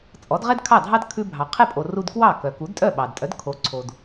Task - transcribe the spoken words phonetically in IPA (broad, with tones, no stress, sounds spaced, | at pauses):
t͡sʼ ɔ˩˥ d ʁ ɛ˥ d kʰ ɑ˥˩ dʱ ɑ˥ d kʰ ʉ˧ bʱ ɑ˩ qʰ e˥˩ pʼ o˩ r u˧ d k w ɑ˥˩ k œ˩ k u˩˥ d tʼ œ˥˩ ɓ ɑ˩ d tʼ œ˩˥ d kʰ o˩˥ ǀʰ o˩ d